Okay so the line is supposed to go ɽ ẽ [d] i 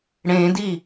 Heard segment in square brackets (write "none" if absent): d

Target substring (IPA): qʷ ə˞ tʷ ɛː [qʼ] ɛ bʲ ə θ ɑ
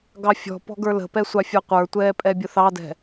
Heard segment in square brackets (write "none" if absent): pʼ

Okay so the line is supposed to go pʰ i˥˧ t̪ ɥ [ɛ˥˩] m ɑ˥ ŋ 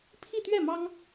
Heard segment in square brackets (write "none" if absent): ɛ˥˩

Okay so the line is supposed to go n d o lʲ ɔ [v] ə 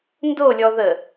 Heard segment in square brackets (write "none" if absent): ð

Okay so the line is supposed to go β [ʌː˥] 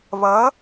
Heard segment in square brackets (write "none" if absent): ʌː˧˥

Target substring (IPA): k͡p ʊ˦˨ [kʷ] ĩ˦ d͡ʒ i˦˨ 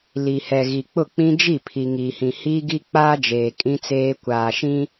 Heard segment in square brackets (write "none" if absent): k͡p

